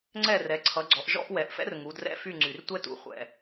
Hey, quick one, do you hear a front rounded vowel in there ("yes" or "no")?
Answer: yes